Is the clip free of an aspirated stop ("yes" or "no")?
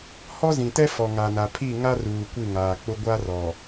no